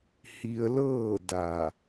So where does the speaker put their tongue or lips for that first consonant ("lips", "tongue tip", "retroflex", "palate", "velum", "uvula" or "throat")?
throat